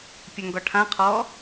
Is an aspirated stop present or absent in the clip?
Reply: present